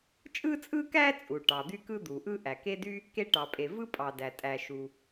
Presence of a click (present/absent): absent